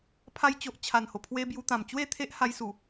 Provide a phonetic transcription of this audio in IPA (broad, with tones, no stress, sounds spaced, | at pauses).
pʰ a˧ j t͡ɕ o˨ ʔ t͡ɕʰ a˨˩ n h o˨˩ pʰ w e˧ b j u˧ t̪ ã˨˩ m t͡ɕ w e˥˧ t̪ʰ e˦ ʔ h a˧ j s u˨˩